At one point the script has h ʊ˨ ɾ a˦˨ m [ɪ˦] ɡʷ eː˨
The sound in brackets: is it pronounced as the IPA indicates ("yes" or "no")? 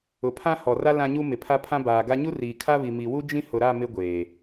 yes